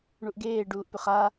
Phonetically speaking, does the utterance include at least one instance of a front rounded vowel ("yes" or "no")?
yes